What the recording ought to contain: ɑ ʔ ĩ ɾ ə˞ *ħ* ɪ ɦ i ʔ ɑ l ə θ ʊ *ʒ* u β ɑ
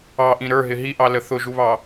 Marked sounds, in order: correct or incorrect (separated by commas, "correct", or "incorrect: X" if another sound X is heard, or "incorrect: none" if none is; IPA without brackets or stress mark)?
incorrect: ɦ, correct